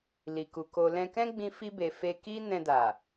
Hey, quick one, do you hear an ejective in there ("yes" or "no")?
no